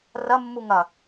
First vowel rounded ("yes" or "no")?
no